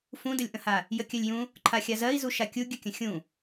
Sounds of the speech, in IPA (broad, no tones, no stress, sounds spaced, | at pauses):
f ũ d ə lʲ ʔ ə̃ h a | j ə kʲ ɜ lʲ j ũ | ǃʰ a xʲ a z ɜ i̯ z u ʃ a kʲ u ɡʲ ə kʲ ə̃ xʲ ũ